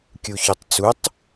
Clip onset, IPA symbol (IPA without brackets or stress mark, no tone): kʲ